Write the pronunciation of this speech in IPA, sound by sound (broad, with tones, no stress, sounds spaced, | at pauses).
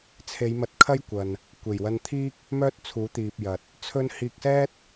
t͡sʰ e˨˧ j m ɐ˨˥ t̚ kʰ ɐ˥ j kʷ ɐ˨ n | kʷ e˨˩ j w ɐ˧ n t̪ʰ iː˥ k̚ | m œː˥ t̚ t͡sʰ uː˨˥ t̪ iː˨ p̚ j ɐ˨ t̚ | t͡sʰ ɵ˥ n h iː˧ k̚ s ɛː˥ t̚